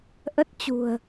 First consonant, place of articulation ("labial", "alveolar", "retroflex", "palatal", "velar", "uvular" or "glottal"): glottal